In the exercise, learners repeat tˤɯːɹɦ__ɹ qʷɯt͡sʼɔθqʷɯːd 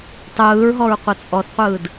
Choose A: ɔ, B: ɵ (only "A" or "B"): A